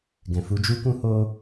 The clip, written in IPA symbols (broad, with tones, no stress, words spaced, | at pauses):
ɡɛ̃˨fu˧d͡ʒu˦kũ˦ ho˦